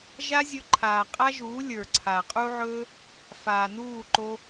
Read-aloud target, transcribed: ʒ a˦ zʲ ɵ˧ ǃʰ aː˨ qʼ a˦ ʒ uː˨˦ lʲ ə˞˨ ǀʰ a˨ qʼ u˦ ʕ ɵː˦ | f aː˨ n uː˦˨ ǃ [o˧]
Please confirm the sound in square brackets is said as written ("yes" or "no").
yes